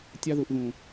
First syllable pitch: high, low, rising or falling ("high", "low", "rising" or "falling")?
high